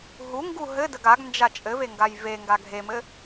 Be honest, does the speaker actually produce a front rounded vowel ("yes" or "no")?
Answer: no